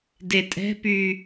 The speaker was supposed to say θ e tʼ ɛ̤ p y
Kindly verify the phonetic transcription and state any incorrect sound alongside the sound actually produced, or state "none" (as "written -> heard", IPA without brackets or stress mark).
θ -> d